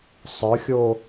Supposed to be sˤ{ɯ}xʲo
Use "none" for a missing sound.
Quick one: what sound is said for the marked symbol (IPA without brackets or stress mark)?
ɯ